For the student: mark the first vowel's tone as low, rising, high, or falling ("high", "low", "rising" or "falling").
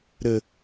low